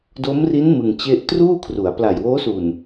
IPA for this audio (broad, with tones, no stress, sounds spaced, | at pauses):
d o˦˥ m r i˦˥ n m ɯ˧ ŋ t͡ɕ e˥˩ ʔ t r uː˥˩ kʰ r u˩˦ a̯ p l a˨˩ j w oː˦˥ s u˨˩ n